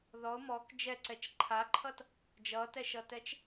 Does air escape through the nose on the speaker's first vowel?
no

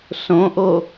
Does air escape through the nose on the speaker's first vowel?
yes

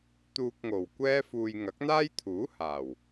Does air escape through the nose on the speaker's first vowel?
no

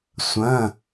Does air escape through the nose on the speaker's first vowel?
yes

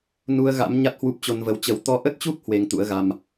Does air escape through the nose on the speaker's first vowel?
no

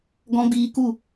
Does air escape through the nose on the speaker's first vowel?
yes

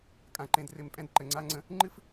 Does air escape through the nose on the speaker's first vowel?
yes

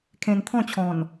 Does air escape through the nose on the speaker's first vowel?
yes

